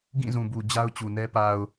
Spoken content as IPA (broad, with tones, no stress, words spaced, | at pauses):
ɡĩ˦˨zũ˨bu˨ d͡ʑa˦ʊ̯t͡ɕu˨nɛ˦ pa˨ʊ̯